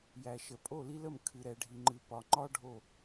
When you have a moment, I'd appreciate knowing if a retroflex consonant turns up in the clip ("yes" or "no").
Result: yes